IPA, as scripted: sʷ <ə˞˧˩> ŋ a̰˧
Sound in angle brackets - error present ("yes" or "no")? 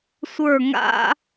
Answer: no